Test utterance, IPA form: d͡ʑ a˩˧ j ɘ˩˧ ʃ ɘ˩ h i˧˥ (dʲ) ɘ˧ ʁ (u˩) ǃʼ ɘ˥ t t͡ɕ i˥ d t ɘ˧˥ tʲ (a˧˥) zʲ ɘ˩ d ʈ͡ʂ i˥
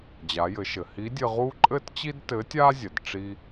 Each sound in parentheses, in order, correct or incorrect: correct, incorrect: u˥, incorrect: a˥

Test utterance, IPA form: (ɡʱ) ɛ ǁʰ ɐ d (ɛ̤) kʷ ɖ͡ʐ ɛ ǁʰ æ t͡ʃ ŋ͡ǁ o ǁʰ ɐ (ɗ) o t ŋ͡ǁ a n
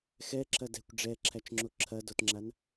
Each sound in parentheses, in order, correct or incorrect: incorrect: x, correct, incorrect: d

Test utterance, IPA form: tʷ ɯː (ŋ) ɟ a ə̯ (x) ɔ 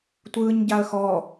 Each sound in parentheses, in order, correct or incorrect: incorrect: ɲ, correct

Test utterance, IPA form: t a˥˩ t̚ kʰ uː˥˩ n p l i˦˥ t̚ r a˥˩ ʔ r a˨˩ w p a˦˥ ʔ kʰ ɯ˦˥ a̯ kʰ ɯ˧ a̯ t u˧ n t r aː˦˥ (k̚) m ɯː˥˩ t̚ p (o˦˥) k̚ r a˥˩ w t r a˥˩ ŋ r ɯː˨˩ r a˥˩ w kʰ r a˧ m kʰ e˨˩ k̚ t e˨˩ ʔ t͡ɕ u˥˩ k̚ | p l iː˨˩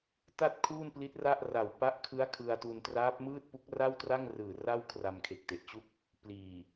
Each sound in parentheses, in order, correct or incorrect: incorrect: p̚, incorrect: u˦˥

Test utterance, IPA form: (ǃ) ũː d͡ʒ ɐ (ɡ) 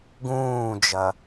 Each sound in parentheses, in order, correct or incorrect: incorrect: ɡ, incorrect: none

